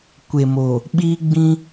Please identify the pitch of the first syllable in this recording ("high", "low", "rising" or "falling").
low